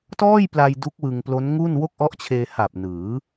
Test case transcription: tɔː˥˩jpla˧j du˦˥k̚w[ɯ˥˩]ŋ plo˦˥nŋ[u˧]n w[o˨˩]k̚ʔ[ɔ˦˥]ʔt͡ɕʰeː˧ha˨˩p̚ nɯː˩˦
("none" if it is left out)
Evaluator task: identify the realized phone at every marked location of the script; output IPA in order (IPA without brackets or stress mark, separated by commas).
ɯ˧, u˥˩, o˥˩, ɔ˦˥